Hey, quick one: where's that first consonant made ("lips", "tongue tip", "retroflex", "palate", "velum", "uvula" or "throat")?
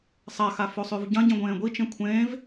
tongue tip